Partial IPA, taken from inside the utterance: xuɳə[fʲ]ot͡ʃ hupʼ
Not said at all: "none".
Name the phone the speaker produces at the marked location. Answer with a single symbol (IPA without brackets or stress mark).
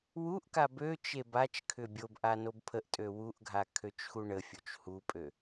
fʲ